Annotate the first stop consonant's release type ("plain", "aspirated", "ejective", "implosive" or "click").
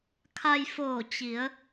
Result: aspirated